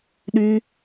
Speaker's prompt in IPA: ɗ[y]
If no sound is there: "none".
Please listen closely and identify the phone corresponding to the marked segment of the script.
y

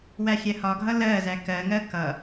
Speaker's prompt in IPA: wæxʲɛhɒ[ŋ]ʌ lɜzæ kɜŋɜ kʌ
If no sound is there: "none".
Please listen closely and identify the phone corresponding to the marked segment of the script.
ɡʱ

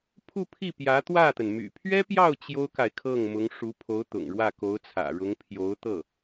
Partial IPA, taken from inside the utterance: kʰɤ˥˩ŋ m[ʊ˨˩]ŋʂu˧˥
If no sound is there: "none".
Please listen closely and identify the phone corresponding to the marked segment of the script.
ʊ˧˥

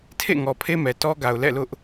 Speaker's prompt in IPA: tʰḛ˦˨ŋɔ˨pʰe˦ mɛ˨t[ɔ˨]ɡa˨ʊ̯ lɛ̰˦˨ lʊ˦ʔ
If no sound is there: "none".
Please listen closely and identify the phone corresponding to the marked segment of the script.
ɔ˦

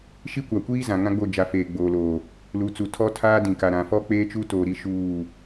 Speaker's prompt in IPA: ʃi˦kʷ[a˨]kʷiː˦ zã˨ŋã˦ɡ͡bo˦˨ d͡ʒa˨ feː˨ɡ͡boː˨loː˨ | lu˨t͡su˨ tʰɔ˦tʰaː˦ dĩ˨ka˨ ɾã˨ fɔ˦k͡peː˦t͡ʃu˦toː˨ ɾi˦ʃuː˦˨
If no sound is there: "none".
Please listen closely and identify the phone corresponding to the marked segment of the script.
a˨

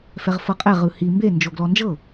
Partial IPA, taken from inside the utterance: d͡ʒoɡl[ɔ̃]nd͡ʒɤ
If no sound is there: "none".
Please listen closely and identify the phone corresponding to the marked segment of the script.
ɔ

